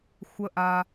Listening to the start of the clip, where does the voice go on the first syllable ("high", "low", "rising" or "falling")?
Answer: rising